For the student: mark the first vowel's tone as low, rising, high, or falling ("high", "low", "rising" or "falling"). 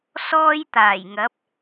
high